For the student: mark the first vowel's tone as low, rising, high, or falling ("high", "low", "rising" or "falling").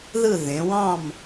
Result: falling